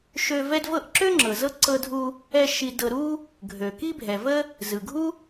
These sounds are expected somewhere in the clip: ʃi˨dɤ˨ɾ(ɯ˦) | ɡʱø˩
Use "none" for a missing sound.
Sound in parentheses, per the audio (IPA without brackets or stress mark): u˦